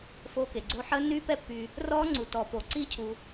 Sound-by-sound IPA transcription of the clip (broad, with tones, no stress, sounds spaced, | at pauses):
f oː˦˥ k e˨ ɡ͡ǀ oː˦˥ ħ əː˦˥ nː yː˦˥ p ɛ˦˥ pː yː˨ | r ɔː˦˥ ŋ͡ǀ u˨ t ɔː˨ p oː˨ ǀ iː˦˥ cʰ uː˨